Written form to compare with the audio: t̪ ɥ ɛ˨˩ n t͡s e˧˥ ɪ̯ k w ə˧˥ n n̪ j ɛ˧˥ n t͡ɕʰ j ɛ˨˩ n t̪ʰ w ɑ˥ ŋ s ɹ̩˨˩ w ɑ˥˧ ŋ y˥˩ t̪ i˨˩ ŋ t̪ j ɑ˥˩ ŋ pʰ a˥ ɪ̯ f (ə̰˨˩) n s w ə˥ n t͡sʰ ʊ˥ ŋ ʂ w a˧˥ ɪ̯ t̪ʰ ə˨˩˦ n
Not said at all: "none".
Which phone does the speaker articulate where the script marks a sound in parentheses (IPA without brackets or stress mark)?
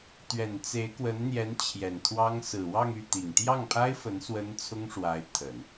ə˧˥